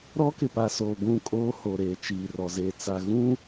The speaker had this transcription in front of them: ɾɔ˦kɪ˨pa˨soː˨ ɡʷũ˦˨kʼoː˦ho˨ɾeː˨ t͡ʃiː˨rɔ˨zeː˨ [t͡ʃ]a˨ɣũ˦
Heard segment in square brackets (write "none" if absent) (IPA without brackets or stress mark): t͡s